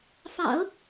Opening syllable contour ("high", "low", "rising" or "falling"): low